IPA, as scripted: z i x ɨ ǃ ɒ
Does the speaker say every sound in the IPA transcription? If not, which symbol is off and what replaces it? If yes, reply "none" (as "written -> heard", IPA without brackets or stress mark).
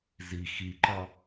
ɨ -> i